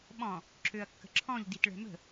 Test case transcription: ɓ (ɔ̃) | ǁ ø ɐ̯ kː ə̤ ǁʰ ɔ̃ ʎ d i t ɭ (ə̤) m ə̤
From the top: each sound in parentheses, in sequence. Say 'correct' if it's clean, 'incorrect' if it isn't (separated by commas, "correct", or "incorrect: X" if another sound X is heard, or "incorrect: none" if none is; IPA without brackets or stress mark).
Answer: correct, incorrect: ɛ̤